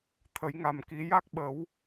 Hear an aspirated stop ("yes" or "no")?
yes